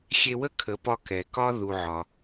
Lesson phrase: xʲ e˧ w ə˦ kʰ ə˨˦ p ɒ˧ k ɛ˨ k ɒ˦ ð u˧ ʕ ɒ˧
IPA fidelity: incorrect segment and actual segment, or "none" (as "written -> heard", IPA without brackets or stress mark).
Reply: none